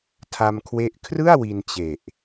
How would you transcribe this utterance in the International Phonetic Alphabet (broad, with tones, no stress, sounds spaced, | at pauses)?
tʰ a˧ m kʰ w e˦˥ ʔ kʰ r ɯ˥˩ a̯ w i˧ n t͡ɕ e˨˩ ʔ